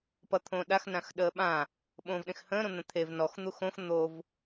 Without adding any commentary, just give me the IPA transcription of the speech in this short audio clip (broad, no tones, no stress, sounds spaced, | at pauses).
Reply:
p ʌ t̪ʰ õː ɗ a x n ã x ɗ əː ɓ ã | ɓ õː v ɗ ẽ x h ə̃ː ɾ õ n̪ ə̃ t̪ʰ e v n ɔ x n̪ u x õ x n̪ o v